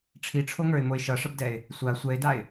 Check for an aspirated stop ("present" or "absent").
present